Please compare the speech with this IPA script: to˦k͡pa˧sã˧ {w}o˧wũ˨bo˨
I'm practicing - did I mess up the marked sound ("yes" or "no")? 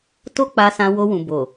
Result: no